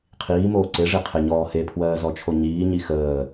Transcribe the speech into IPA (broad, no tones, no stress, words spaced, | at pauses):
qʰiːmoː ǀeʐe qʰeɲɔː hepʰwɜːzɔt͡ʃʰo ɲiːɲi xəː